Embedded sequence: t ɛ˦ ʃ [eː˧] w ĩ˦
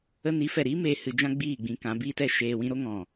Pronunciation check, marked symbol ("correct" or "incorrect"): correct